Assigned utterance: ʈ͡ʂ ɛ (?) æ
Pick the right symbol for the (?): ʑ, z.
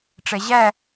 ʑ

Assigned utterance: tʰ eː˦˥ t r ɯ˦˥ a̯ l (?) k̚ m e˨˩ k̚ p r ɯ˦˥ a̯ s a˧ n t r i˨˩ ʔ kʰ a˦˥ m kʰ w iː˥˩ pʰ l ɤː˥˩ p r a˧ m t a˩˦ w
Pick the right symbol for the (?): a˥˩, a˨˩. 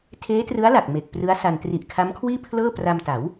a˨˩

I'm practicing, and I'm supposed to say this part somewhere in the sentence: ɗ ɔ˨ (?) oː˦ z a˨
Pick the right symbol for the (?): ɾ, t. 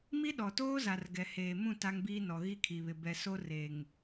t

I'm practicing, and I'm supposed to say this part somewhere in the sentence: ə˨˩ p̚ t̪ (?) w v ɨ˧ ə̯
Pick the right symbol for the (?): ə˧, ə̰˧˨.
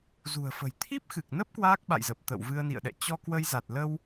ə̰˧˨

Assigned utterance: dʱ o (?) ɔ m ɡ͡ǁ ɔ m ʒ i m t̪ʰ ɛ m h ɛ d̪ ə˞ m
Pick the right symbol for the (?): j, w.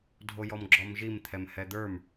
j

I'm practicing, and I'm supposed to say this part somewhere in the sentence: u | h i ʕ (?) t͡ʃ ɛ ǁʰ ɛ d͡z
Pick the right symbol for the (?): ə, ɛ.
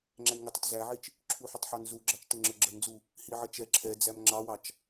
ə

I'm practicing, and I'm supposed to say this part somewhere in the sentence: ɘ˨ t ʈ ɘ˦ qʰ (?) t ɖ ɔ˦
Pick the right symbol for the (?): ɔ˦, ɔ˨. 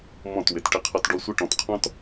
ɔ˦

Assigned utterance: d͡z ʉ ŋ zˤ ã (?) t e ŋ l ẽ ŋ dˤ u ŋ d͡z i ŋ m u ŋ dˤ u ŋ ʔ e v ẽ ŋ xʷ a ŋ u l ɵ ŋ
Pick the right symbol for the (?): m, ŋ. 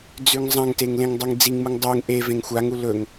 ŋ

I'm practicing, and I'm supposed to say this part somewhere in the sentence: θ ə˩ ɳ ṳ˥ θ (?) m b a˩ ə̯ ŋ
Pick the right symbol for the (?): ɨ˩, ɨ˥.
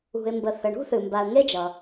ɨ˩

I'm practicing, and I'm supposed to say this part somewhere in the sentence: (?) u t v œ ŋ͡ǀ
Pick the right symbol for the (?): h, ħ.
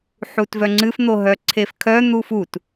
ħ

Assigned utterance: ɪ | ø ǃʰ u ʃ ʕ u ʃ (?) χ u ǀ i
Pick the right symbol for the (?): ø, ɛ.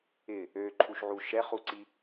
ɛ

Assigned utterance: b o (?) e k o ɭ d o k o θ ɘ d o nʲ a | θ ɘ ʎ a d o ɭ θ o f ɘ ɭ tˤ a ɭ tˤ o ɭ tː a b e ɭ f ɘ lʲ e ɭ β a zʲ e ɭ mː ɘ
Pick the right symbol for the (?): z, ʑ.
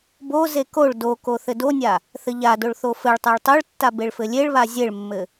z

